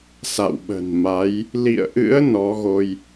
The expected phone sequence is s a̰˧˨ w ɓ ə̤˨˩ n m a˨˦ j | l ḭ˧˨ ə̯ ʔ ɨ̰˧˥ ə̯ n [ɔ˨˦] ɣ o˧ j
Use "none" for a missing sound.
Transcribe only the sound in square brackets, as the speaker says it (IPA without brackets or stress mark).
ɔ˨˦